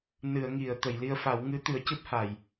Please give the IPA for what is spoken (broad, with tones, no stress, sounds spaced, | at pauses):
n ɨ˨˩˨ ə̯ ŋ i˨˩˨ ə̯ t̪ ə˨˩˨ j l i˧ ə̯ f a˨˩˦ w ŋ ɨ˧˥ t̪ ɨ˨˩˦ ə̯ c ɨ˦˥ p̚ h a˨˩˨ j